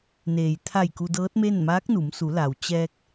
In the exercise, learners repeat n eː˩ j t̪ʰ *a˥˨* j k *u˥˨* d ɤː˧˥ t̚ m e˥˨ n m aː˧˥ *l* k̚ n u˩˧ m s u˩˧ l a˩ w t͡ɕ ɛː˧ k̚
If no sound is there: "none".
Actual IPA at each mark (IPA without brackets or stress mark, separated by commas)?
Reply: a˧˩, u˧, none